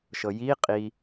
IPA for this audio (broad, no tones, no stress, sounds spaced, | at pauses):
ʃ ɤ j i qʼ i